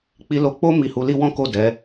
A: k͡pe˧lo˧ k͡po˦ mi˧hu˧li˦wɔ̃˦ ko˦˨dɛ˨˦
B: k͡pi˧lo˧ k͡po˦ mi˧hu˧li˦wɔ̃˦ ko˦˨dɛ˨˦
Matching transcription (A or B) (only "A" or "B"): B